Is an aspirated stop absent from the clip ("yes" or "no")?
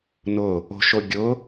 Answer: yes